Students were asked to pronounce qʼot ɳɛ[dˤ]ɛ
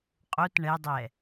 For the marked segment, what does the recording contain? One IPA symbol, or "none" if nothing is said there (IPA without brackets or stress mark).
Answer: dˤ